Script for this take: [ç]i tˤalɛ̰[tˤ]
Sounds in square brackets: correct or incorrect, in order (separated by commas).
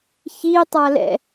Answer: correct, incorrect